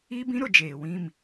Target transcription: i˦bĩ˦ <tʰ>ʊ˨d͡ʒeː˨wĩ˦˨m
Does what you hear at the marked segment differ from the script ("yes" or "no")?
yes